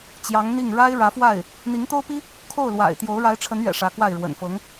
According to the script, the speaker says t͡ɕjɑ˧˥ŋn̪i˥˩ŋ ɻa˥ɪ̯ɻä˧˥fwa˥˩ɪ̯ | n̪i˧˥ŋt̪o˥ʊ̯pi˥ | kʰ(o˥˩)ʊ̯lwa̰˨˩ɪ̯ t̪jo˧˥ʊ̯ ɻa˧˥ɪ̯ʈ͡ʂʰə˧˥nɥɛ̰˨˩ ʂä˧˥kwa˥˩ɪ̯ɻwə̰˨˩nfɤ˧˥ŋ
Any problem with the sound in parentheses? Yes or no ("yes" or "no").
no